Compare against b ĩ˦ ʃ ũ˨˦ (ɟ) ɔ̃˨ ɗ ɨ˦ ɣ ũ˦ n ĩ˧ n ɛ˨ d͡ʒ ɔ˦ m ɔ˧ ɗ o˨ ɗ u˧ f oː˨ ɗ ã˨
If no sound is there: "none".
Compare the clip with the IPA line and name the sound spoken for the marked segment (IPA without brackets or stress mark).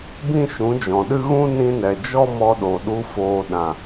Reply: d͡ʒ